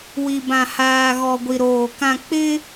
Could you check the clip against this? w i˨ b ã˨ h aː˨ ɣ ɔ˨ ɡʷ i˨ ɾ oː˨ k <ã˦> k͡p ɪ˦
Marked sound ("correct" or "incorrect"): incorrect